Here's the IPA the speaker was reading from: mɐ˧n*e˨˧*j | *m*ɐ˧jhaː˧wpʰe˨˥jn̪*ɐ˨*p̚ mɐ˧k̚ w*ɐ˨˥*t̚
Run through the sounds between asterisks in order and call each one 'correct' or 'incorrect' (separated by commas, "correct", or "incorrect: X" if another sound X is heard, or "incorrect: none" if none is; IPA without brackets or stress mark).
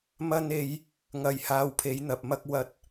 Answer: correct, incorrect: ŋ, correct, correct